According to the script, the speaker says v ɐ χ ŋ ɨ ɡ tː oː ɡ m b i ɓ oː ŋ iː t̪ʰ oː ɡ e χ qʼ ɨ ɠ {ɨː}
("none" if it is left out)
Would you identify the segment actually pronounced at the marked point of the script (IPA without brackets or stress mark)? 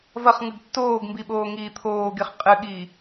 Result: iː